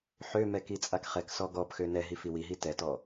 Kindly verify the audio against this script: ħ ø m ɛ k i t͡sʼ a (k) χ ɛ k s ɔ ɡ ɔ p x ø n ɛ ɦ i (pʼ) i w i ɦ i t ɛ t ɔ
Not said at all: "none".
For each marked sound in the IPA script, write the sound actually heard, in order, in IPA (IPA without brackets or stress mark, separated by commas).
k, f